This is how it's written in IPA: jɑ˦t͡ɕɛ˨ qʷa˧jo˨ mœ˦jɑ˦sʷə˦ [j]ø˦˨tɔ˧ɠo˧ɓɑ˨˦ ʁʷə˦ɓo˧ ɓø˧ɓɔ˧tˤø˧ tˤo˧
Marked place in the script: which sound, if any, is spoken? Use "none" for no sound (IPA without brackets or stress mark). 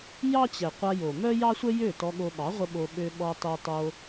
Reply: j